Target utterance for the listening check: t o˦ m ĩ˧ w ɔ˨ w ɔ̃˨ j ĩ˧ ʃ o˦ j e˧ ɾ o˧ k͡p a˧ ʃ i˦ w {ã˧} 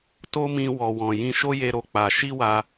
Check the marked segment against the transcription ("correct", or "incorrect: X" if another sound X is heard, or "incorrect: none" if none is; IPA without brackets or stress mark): incorrect: a˧